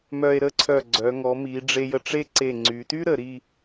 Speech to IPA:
m œ˧ e̯ ɾ ə˥˧ ǀʰ œ˧˩ ɡ͡ǀ œ˩˧ ŋ ɔ˩˧ m i˩˧ ɖ͡ʐ e˧ j ə˧ ʈ͡ʂ e˥ ǀ e˧˩ ŋ͡ǀ y˩˧ t y˥ ɾ ə˩˧ ɾ i˥˧

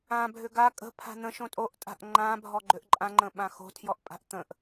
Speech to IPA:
ã bʱ ʏ ɡ a kʼ ə̤ pʰ a̤ n̪ ə̃ ʃ õ tʼ o ʔ tʼ a̤ ʔ ŋ͡ǃ ã bʱ ɔ ɡ͡ǃ ʏ ʔ ǃʼ ã ŋ͡ǃ ə̃ ɓ ã x o̤ tʰ j ɔ ʔ pʼ a̤ ʔ t̪ ə̃ ʔ

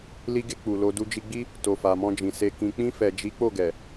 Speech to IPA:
l i˧ ɡ e˧ k͡p u˨ l o˧ d u˧ d͡ʒ i˧ ɡ͡b i˦ | t o˨ f a˨ m ɔ̃˧ d͡ʒ ĩ˨ s e˨ k ĩ˨ k͡p ĩ˧ f ɛ˨ d͡ʒ i˨˦ k͡p o˦˨ ɡ ɛ˨

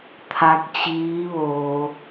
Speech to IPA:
t̪ʰ a˧˥ k̚ t͡ɕ iː˧˥ ʋ oː˧

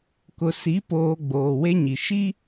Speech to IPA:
k ʊ˨ s i˨˦ p oː˨ ɡ͡b oː˨ w e˦ ɲ i˨ ʃ i˦

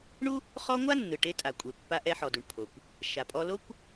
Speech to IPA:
ɳ u˥ | χ ɔ˥ ŋʷ a˥ nː ɯ˩ ʈ e˧ tʼ a˩ kʷʼ e˩ pː a˧ ʔ ɛ˧ ħ ɔ˩ d u˩ ɳ pʰ o˩ kʷ | ʃ a˩ pʼ ɔ˧ l o˥ kʷ

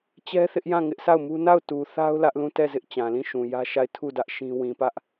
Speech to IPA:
t͡ɕ ɛ˦ θ ɪ˦ ʔ j ã˦˨ ŋ ɪ˦ ʔ sʰ a˦˨ ʊ̯ m u˦ n a˦˨ ʊ̯ t u˨ θ a˦ ʊ̯ l ä˦ ʔ l ũ˦˨ t ɛ˦˨ z ɪ˦ ʔ t͡ɕ ã˨ l ĩ˦˨ ʃ ũ˨ j ä˦ ʃ a˦˨ ɪ̯ tʰ u˦˨ d ä˦ ʔ ʃ ĩ˦ w ĩ˨ p ä˦ ʔ

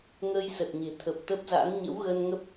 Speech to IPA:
ŋ əː˧ j s ə˨˩ t̚ ɲ e̤˨˩ t̪ʰ ə˨˩ p̚ t̪ ə˦˥ p̚ z a̰˧˥ n ɲ ə̰˧˥ w ɣ ə˧ n ŋ ə˦˥ p̚

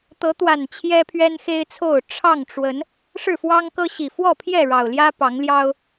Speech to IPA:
t̪ ɤ˨˦ t̪ w a˨˩ n t͡ɕʰ j ɛ˦ pʰ ɥ ɛ˦ n x e˦ ɪ̯ t͡sʰ o˥˨ ʊ̯ ʈ͡ʂʰ ɑ˥˨ ŋ ʈ͡ʂ w ə˨˦ n | ʂ ɻ̩˥˨ f w ɑ˦ ŋ k ɤ˦ ɕ i˨˩ f w ɔ˥˨ pʰ j ɛ˥˨ ɻ ɑ˨˩ ʊ̯ l j ä˦ p ɑ˨˦ ŋ l j ɑ˦ ʊ̯

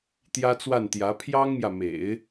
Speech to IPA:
t̪ j ä˥ t͡s w a˥˩ n t̪ j ä˧˥ pʰ j ɑ˥ ŋ m j ä˨ m ḛ˨˩˦ ɪ̯

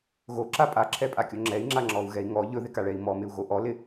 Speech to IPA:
ɣ o ǁ a pʼ a ǁʰ ɛ pʼ a kʲ o ŋ͡ǁ ɛ i̯ ŋ͡ǁ a ŋ͡ǁ ɔ u̯ ɣ ɛ i̯ ŋ ɔ ʎ ɵ ð ɪ k a ɭ ɛ i̯ m ɔ m ɪ u̯ ɣ o ʔ ɔ l ɪ

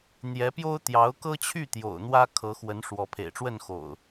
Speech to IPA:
n̪ j ɛ˨˦ p j o˦ ʊ̯ t̪ j ɑ˨˦ ʊ̯ k ɤ˦ t͡ɕʰ y˥˨ t̪ j o̰˨˩ ʊ̯ n̪ w ä˦ kʰ ɤ˨˦ x w ə˨˦ n ʂ w ɔ˨˦ pʰ ḛ˨˩ ɪ̯ ʈ͡ʂ w ə˥˨ n x o̰˨˩ ʊ̯

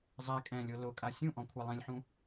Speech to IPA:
zˤ ɛ kʼ ɛ̃ lʲ o l ʊ kʼ a sʲ ũ ʔ ɔ̃ kʷʰ ɛ lˠ ĩ lʲ ħ ũ

